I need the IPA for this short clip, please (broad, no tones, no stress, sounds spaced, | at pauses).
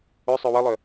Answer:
ø sˤ ø w ə lˠ œ